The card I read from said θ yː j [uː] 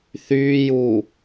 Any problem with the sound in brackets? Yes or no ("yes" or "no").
no